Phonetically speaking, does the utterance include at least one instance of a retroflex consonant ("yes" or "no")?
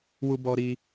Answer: no